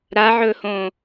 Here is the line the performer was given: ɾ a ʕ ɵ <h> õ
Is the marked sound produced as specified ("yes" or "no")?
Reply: yes